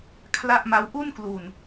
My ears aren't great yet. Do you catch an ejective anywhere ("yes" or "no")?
no